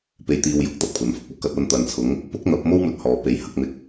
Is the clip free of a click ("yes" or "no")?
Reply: yes